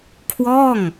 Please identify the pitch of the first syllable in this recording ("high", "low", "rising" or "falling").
falling